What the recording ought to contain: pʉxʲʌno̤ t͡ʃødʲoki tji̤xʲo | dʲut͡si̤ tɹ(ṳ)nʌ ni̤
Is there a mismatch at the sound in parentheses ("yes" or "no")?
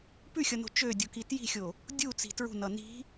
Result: no